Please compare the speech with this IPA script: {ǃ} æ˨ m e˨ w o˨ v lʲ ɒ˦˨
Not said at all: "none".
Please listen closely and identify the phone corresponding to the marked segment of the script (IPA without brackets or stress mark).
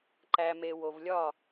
ǃ